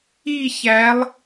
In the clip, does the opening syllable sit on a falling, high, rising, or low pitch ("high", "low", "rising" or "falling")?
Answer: falling